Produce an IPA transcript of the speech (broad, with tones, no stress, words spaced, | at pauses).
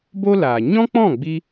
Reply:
bo˦laː˨ ɲɔ̃˦k͡pɔ̃˦˨ɡ͡bi˧